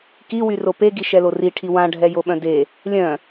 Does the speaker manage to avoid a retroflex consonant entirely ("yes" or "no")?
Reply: no